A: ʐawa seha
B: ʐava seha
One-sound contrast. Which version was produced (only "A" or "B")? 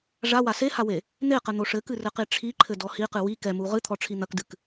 A